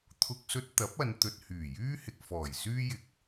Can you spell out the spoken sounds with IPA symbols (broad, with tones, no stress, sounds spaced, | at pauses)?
t̪ʰ ʊ˧ k̚ s ɵ˧ t̚ t̪ ɐ˨˥ p̚ ɐ˨˧ n t̪ ɵ˨ t̚ h yː˨˩ j yː˥ h ɪ˨ k̚ f ɔː˨˩ j s yː˥ j ɪ˨ k̚